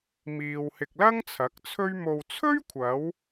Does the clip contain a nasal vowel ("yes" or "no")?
no